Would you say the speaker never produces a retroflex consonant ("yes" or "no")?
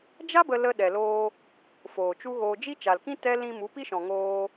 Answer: yes